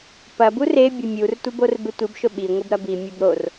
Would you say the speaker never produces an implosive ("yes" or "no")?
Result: no